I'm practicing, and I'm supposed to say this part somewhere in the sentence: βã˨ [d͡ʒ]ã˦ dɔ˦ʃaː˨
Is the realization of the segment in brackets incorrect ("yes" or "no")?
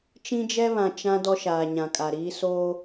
yes